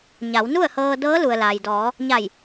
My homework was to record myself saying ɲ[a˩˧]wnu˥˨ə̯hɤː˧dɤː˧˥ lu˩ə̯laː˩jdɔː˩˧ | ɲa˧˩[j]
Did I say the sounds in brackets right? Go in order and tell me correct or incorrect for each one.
correct, correct

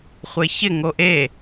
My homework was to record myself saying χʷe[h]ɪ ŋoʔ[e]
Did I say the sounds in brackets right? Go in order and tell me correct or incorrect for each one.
incorrect: ç, correct

